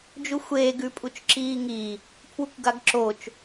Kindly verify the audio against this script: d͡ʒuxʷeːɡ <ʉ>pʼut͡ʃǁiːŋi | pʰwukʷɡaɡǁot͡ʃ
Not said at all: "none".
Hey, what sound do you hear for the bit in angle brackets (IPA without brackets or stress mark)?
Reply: ʉ